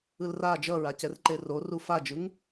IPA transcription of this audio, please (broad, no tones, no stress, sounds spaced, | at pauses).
ɯ l r a d͡ʒ ʌ ɹ a c ɛ r ǃ e r o r u f a d͡ʒ ɯ ŋ